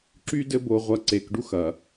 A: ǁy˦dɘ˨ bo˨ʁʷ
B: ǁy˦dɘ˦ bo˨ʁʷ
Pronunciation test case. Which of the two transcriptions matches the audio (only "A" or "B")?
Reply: B